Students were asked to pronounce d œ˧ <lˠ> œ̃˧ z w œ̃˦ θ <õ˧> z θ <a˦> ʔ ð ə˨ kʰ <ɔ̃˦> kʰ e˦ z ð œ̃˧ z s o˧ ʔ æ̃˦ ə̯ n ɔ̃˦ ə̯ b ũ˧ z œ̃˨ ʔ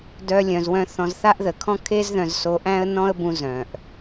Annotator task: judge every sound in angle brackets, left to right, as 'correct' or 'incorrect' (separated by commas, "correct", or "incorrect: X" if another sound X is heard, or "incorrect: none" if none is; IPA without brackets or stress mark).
incorrect: lʲ, incorrect: ɔ̃˧, correct, correct